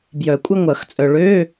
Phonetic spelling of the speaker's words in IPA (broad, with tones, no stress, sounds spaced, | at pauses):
b j œ˨˩˦ kʷʼ ɐ˥ ŋʷ ɐ˨˩˦ x t͡sʼ œ˨ ɭ ø˧˥˧